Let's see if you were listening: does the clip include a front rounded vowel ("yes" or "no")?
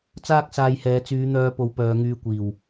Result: yes